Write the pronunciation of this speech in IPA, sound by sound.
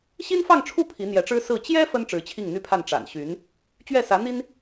ɕ i˥ n f ɑ˥˧ ŋ ʈ͡ʂʰ u˥˩ pʰ i˧˥ n̪ j ɛ˧˥ ʈ͡ʂ ɻ̩˥ s ɹ̩˥˩ t͡ɕ j ɛ˥ f ə˥ n ʈ͡ʂ ɻ̩˧˥ t͡ɕʰ i˥˩ ŋ n̪ y˥ pʰ a˥˩ n ʈ͡ʂ a̰˨˩ n ɕ y˧˥ n | t͡ɕ ɥ ɛ˥˩ s ä˧˥ n̪ i˥ n

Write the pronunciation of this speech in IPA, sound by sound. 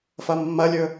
f ɐ mː ɐ lʲ ɵ

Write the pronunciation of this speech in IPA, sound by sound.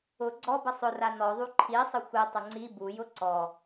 ʊ ɡ͡ǀ ɔ b ə sˤ ʊ r a n ɔ ðˤ u ǃʰ i sˤ ə xʷ i tˤ ə ŋ͡ǀ i b u j ʊ ǀ ɔ

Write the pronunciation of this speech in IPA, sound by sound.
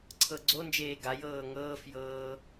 ǀʰ ɤ ɡ͡ǀ o n d͡ʒ eː ɡ a j ɤː ŋ ɤː f j ɤː

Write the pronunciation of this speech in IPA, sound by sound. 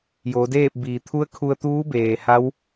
j oː˩˧ d eː˥˨ p̚ b iː˩ t̪ʰ u˧˥ ə̯ kʰ u˧ ə̯ t̪ uː˧˥ b eː˩ h a˧˥ w

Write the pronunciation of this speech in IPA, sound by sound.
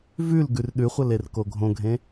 v ʉ l ɡ ʉ r ɗ ʉ χʷ ɐ l e r k o ɡʱ õ ɡʱ ẽ

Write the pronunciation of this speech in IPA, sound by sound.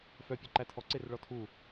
f œ pʲ œ ǃ æ tʰ ɔ ǀ e r ɭ ɔ tʰ u

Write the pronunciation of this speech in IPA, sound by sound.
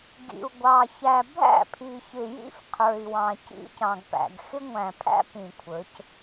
ɡ ḭ˨ u̯ ɡʷ ɑ˨ ç æ˨ bʱ æ̰˦˨ pʰ i˨ ç ɪ˨ j ḭ˦ f qʰ ə˞˨ i̯ w ɑ̃˨ c ḭ˦ c ɑ̃˨ ɡ p æ̰˨ ɡ x ɪ˦ ŋʷ æ̃˨ pʰ æ̰˦ p ĩ˨ kʷʰ ə˞˨˦ c

